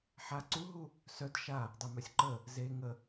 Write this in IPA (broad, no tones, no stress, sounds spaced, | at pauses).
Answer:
ħ a ǀ u ɦ u | s œ d ʃ a | dˤ ɛ m œ sʲ ǃ ə | z e ŋ ə